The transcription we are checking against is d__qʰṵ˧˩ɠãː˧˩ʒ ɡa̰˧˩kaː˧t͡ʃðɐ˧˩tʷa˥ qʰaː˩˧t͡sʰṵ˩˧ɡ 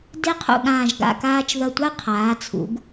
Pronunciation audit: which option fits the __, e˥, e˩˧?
e˥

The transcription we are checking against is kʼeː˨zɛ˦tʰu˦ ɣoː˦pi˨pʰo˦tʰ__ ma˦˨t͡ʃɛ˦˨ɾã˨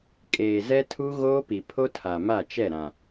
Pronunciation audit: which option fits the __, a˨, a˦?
a˨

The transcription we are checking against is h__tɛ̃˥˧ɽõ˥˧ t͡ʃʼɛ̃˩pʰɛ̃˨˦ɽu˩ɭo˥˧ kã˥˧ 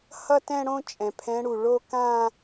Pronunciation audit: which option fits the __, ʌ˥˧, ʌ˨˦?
ʌ˥˧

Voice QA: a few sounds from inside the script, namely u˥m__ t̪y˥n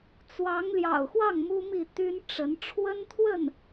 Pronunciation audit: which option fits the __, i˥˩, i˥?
i˥˩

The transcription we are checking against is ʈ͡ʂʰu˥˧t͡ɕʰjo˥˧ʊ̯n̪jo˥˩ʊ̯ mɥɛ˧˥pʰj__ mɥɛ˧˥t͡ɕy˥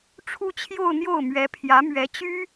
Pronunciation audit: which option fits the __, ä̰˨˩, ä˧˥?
ä˧˥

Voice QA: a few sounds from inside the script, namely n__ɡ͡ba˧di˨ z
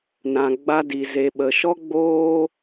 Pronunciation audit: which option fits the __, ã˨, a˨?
ã˨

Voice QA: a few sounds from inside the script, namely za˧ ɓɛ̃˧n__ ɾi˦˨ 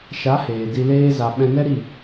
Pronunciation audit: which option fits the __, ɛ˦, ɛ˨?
ɛ˦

